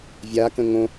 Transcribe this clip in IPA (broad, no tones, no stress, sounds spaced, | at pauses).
vʲ a k ə̃ ŋ õ